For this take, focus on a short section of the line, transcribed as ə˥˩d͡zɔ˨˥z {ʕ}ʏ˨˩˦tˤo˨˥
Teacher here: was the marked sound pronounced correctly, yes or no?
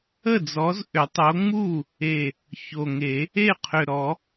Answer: no